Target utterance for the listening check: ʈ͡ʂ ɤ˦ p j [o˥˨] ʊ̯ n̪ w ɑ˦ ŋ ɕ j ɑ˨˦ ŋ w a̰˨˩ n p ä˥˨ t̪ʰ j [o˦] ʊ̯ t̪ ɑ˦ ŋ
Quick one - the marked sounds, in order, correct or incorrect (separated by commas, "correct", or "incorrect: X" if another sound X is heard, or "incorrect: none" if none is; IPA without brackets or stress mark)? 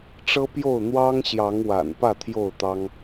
correct, incorrect: o˥˨